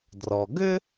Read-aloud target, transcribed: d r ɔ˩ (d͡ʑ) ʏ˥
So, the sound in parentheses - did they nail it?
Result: no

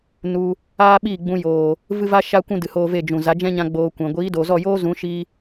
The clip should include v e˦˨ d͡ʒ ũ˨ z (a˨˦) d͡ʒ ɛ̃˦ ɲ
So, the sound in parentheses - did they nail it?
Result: yes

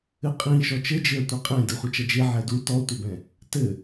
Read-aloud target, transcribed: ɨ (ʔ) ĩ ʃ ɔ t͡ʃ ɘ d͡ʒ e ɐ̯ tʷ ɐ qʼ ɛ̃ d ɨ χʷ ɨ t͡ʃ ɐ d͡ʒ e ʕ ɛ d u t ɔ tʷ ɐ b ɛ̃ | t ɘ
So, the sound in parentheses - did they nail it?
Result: no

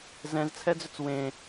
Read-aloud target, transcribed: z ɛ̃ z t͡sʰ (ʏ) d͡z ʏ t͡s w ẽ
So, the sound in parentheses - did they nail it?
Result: no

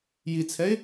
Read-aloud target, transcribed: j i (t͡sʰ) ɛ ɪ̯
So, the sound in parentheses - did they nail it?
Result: yes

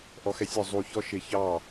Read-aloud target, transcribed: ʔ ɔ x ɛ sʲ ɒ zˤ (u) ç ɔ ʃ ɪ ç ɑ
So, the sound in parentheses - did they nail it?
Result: yes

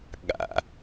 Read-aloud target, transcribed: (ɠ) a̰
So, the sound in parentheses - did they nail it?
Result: yes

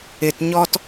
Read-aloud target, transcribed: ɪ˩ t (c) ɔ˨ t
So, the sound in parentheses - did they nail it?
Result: no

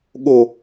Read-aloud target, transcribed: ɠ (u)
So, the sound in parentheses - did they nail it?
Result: no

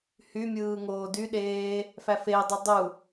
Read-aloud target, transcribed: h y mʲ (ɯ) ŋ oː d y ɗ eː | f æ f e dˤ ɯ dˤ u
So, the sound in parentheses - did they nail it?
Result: no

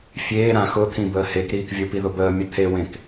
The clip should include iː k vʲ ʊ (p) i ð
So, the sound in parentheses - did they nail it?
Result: yes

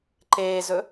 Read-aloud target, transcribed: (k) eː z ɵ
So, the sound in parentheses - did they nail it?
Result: no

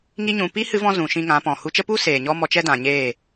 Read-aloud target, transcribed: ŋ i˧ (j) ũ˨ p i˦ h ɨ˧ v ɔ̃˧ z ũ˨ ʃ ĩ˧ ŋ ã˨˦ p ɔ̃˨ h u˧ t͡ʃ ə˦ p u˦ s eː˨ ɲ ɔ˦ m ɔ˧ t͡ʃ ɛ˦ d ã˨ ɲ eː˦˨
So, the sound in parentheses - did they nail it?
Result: no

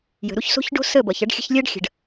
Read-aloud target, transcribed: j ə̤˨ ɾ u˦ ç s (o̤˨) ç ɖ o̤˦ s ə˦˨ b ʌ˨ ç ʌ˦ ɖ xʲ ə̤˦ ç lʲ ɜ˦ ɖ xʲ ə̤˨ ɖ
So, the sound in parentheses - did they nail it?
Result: no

